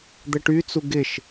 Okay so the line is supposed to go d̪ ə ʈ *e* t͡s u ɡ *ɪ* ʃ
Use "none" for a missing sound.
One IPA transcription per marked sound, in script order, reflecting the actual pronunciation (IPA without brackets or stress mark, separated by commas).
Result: y, ɪ